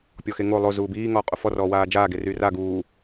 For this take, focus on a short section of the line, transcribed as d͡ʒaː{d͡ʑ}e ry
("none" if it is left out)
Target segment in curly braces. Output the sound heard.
ɡ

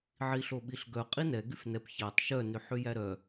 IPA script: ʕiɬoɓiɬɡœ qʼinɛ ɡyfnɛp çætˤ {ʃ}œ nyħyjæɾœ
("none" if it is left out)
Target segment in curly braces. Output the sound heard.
ʃ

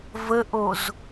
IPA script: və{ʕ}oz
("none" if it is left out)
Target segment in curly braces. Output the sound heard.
ʔ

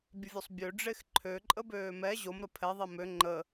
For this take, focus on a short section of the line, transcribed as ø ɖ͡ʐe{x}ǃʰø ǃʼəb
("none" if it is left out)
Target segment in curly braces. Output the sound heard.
x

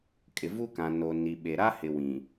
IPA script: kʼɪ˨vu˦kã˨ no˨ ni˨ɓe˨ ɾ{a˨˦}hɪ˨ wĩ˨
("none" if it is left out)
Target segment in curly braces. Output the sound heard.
a˦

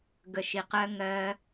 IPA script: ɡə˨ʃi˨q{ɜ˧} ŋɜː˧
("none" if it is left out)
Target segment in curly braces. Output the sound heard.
ɜ˧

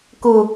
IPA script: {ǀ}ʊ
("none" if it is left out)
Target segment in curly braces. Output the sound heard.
k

